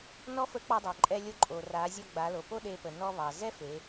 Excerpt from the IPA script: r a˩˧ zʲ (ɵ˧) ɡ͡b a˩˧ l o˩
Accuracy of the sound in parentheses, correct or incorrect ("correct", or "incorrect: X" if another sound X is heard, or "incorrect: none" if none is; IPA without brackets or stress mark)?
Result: incorrect: ɔ˧